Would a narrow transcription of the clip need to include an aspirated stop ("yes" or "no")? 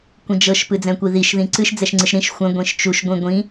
no